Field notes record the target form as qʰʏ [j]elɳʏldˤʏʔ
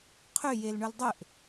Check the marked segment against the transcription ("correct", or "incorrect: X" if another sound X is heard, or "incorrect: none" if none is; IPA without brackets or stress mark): correct